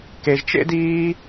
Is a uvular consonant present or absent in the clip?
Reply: absent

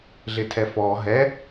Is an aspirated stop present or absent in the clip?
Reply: present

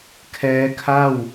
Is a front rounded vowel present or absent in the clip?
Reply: absent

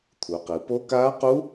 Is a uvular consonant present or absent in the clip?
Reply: present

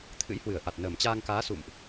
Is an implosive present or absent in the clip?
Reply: absent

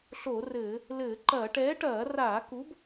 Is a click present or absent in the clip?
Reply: present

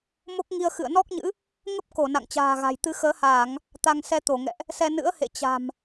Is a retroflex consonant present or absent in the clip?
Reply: absent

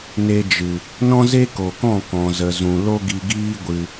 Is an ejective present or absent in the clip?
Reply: absent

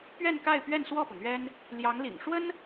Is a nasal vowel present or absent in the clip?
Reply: absent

